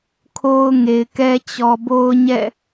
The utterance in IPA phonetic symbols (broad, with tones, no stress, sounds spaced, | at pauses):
kʰ o˦ ʊ̯ ŋ e˨ ɪ̯ k ɛ˦ t͡ɕ ɔ˨ b o˦ ʊ̯ ɲ ɛ̰˦˨